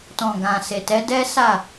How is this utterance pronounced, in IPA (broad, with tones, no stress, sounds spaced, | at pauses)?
t ɔ̃˨ ɡ ã˨ s e˨ t ɛ˨˦ d ɛ˦ s a˦˨